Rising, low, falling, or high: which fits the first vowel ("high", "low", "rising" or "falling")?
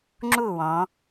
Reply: falling